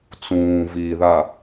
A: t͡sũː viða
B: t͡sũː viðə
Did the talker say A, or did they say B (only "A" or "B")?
A